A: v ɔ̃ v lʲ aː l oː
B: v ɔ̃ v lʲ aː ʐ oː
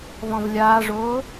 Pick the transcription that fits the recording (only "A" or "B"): B